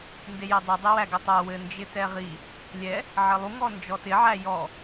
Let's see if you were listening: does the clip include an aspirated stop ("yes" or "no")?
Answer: no